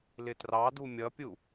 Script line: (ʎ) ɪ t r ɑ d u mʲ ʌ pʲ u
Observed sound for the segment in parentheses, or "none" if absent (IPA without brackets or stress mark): l